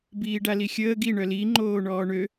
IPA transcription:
b iː ɖ a l i xʲ əː ɡ i ɳ œ l i ŋ͡ǃ oː ɳ ɔː ɳ ø

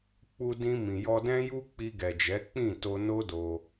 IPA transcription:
k͡p u˧ d ĩ˧ m ĩ˨ j ɔ˧ d ɛ̃˦ j u˦ k͡p i˧ ɡ ɛ˨ d͡ʒ ɛ˨˦ k͡p ĩ˦˨ t o˧ n o˦ d o˧

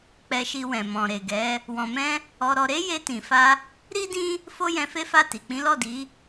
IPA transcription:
k͡p ɛ˧ ʃ i˧ w ɛ̃˨ m ɔ̃˨ ɾ e˨ ɡ ɛ˨˦ | w ɔ̃˨ m ɛ̃˧ | ɔ˧ ɾ ɔ˧ ɾ e˦ j e˧ t ĩ˨ f a˧ | ɾ i˦ d ĩ˦ | f o˦ j ɛ̃˧ f e˦ f a˦˨ t i˨ k͡p ĩ˨˦ l ɔ˦˨ d i˨˦

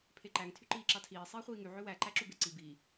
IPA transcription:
pʰ e ǃ æ ŋ tʰ y ǃ iː ǁ ɑ tʰ iː sˤ iː χʷ iː ŋ y ʕ ø w æ ǃ æ ǁ u b e ǀ i b i

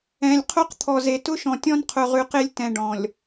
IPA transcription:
ɛ̃˨ lʲ qʰ o˦ q t̪ʰ ɔ˨ z e˨ t ʊ˦ ʃ ɔ̃˨ tʲ ɔ̃˦ n qʰ ʊ˨ ʁ ʉ˨ q e˦ lʲ t ɛ̃˨ ɖ ɔ̃˨ lʲ

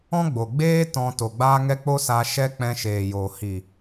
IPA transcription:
ɔ̃˦ ɡ͡b o˨ ɡ͡b eː˦ t ɔ̃˧ t o˨ ɡ͡b aː˦ ŋ ɛ˦ k͡p o˦ s a˧ ʃ ɛ˦ k͡p ɛ̃˧ ʃ eː˨ j oː˨ h i˨

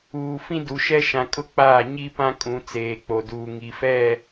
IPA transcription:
uː˨ f ĩ˦ d u˨ ʃ ɛ˦ ʃ ã˨ kʼ ʊ˦ k͡p aː˦˨ ɲ i˦ p ã˦ kʼ ũ˨˦ t͡s eː˨ k͡p o˨ d uː˨ ŋ i˨ f ɛ˦˨

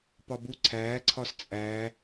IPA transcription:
p ɒ b u ǀʰ æː ǀʰ ɒ s t͡sʼ æː

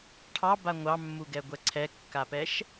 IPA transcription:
ʈʰ ɑ b a ŋʷ ɑ mː u ɡ ɛ ɡʷ ɛ ǀʰ ɛ kː a p ɛ ʃ

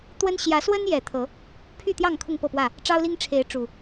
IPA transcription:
t̪ w ə˦ n ɕ j ä˨˦ s w ə˦ n j ɛ˨˩ t̪ʰ ɤ˨˦ | pʰ y˥˨ t̪ j ɑ˥˨ ŋ kʰ ʊ˥˨ ŋ p ɤ˥˨ p w ä˥˨ | ʈ͡ʂ ɑ˦ ʊ̯ l i˦ ŋ ʈ͡ʂʰ e˨˦ ɪ̯ ʈ͡ʂ u˨˩

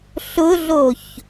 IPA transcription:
ɬ ʊ ɮ o ç

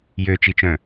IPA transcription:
j ø t͡ʃ i t͡ʃ œ̃

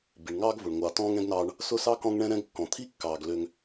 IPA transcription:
b i˨ ɳ ŋ ɑː˦ ɡ v ʊ˨ ɳ ŋʷ ɑ˨ t ɔ̃ː˦ ŋ ɛ̃˦ ɡ n ɑː˦ ɳ | s ʊ˦ s ɑ˦ k ɔ̃˦ ŋ ɳ ɛ̃˦ ɾ ɛ̃˦ ɡ kː ɔ̃˨ t̪ʰ i˦ kː ɑː˨ ɡ l ø˦ ŋ

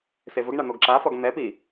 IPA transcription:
s e v ʊ ɡ ɳ a n̪ o ɡ ǁ a f ɔ ɡ n̪ ɛ p i

